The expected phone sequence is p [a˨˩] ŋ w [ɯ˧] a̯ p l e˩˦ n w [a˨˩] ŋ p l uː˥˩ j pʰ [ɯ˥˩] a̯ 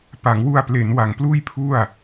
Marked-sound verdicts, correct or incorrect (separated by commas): incorrect, incorrect, correct, incorrect